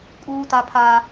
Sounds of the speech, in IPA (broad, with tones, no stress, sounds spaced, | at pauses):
kʼ uː˦ t a˦ pʰ a˦